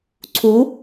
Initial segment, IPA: ǀʰ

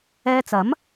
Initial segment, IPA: ɛː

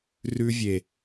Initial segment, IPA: r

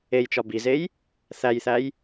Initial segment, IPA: e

